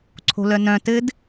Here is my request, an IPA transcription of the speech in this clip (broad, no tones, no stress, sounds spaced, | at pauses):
ǀʰ o̤ l œ n œ̃ t ɘ d